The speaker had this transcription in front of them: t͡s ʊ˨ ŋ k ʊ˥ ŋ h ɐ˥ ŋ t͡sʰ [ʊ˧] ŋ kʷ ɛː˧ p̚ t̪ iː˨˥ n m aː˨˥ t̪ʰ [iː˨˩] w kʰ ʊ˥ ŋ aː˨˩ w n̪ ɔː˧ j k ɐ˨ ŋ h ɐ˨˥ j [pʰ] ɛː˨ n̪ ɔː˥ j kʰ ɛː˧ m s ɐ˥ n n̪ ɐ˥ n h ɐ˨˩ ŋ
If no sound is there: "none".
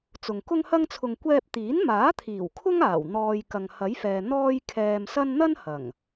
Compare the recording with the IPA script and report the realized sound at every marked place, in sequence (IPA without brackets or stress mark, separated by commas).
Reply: ʊ˧, iː˨˩, f